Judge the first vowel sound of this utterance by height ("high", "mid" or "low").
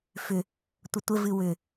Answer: high